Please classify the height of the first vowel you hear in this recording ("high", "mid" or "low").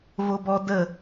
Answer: mid